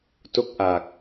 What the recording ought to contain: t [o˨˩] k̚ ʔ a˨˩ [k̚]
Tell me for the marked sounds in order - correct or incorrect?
incorrect: o˥˩, correct

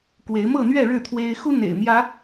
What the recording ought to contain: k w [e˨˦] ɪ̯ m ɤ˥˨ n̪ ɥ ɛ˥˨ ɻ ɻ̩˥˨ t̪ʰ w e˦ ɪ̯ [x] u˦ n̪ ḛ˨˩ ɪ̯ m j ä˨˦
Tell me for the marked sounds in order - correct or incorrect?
correct, correct

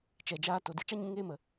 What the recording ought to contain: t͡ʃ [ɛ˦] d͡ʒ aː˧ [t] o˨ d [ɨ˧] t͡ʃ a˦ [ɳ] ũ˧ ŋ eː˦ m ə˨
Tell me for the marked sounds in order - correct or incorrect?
incorrect: ɛ˨, correct, correct, incorrect: ɲ

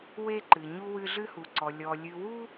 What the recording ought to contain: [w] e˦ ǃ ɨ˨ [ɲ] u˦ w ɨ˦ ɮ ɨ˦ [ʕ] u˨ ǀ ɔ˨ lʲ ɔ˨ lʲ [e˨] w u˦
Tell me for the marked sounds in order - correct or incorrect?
correct, correct, incorrect: h, incorrect: ɨ˨

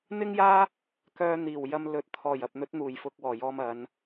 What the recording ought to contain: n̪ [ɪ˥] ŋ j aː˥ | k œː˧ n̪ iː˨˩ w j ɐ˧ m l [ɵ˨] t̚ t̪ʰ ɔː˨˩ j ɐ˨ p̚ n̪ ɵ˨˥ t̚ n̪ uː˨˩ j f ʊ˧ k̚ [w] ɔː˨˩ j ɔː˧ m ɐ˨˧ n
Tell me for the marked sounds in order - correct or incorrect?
correct, correct, correct

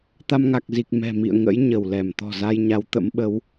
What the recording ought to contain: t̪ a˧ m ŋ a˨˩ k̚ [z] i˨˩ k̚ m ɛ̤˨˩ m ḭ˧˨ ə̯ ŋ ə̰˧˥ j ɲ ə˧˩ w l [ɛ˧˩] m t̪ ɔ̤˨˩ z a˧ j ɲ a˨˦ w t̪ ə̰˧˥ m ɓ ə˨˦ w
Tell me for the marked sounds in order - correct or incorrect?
correct, correct

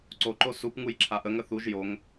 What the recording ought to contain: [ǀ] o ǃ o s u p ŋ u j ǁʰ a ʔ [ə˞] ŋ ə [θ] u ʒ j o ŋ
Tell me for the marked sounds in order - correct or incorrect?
correct, incorrect: ə, correct

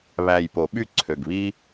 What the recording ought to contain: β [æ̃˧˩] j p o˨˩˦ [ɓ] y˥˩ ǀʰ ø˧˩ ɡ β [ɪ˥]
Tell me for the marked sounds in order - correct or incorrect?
incorrect: æ˧˩, correct, incorrect: i˥

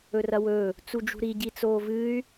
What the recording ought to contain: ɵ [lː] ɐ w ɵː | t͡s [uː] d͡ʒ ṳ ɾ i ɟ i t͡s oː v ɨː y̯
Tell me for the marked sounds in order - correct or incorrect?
incorrect: r, incorrect: u

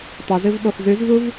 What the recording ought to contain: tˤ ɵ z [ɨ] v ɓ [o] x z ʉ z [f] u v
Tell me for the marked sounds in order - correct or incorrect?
correct, correct, incorrect: v

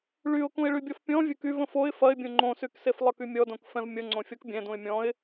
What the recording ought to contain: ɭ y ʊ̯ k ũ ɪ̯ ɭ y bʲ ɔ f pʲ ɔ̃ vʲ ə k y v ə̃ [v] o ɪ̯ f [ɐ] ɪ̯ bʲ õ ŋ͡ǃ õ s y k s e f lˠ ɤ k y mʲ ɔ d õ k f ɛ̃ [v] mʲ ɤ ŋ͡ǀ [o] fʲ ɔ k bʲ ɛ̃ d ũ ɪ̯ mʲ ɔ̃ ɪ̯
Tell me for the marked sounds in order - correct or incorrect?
incorrect: f, correct, correct, incorrect: õ

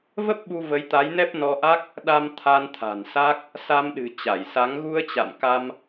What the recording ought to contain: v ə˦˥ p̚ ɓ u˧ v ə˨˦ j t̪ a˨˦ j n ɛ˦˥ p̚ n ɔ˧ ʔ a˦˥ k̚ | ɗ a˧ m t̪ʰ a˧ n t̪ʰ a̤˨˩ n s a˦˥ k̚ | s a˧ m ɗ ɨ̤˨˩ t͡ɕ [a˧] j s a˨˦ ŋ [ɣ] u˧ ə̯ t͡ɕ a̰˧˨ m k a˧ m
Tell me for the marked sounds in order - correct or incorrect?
incorrect: a˧˩, correct

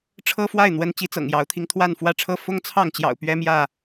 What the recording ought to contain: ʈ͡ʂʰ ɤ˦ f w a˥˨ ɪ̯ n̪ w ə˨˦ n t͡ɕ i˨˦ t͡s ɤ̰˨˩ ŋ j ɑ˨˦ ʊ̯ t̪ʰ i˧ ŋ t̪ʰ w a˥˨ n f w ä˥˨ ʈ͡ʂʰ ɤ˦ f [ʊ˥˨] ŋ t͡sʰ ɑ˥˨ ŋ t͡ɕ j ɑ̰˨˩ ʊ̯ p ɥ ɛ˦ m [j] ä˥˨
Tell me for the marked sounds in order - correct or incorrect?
incorrect: ʊ˦, correct

